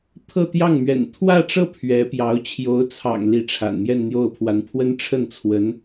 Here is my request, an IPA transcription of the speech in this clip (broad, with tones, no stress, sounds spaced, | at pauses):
t̪ʰ ɤ˥˧ t̪ j ɑ˥˩ ŋ m ɥ ɛ̰˨˩ n t̪ʰ w ä˥˧ ʈ͡ʂ ɤ˥˩ pʰ ɥ ɛ˧˥ p j ɑ˧˥ ʊ̯ t͡ɕʰ j o˧˥ ʊ̯ t͡sʰ ɑ̰˨˩ ŋ l i˧˥ ʈ͡ʂʰ a̰˨˩ n m j ɛ˥˧ n n̪ j o˥˩ ʊ̯ pʰ w a˧˥ n pʰ w ə˥ n ʈ͡ʂʰ ə˥˩ n t͡sʰ w ə˧˥ n